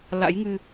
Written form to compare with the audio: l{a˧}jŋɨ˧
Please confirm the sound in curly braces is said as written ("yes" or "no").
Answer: no